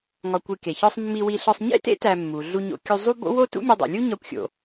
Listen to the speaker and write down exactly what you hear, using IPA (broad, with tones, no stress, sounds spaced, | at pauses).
ŋ ɒ˧ kʷ i˧ k e˩ ç ɒ˥ sˤ mː i˧ w i˧ ɬ ɒ˧ sˤ ɲ ḛ˥ t ḛ˥ t æ˧ mː u˩ ɮ u˧ ɲ o̰˧ kʲ u˧ zˤ u˥ b o̰˥ w o˥ t ṵ˥ mʲ o˧ dˤ ṵ˩ lʲ u˥ ɲ ɒ˧ kʷ xʲ o̰˩